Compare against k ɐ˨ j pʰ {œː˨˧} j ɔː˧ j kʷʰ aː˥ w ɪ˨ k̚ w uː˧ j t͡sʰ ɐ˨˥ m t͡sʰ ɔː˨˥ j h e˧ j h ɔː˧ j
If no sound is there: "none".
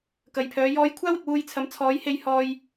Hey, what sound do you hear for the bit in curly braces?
œː˨˧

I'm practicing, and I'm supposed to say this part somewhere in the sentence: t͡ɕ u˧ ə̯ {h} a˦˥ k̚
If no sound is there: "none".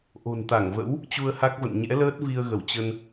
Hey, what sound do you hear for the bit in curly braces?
h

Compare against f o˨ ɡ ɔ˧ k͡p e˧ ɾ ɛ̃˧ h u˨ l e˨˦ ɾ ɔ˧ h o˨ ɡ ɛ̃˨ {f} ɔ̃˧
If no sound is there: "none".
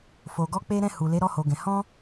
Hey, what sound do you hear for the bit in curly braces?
h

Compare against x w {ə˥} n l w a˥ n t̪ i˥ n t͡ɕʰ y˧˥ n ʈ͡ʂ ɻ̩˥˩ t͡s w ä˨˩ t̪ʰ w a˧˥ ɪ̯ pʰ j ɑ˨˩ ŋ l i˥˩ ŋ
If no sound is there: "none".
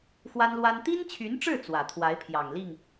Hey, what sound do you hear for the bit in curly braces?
a˥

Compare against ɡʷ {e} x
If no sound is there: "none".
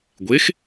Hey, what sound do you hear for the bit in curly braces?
e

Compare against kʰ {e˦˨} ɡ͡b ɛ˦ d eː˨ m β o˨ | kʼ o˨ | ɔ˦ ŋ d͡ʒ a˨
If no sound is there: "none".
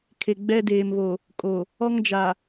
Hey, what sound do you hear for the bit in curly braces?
e˨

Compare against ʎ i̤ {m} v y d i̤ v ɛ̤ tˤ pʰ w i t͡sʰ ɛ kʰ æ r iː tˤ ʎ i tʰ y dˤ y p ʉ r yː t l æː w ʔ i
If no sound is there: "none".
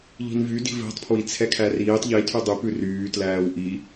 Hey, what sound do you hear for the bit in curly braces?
n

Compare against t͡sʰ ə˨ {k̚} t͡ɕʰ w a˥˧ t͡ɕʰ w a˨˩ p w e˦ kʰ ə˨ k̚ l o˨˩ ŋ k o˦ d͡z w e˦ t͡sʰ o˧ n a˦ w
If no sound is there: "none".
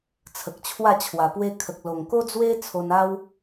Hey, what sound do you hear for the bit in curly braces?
k̚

